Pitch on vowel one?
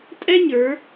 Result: high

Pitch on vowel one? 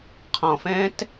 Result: low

